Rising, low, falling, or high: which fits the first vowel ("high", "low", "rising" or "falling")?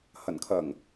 low